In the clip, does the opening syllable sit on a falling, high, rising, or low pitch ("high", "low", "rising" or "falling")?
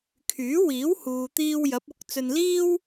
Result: rising